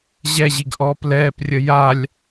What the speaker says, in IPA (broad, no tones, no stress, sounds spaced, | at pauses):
ʑ ɛ ʑ i ɡ ʔ ɔː p l ɛː p rʲ ə j a lʲ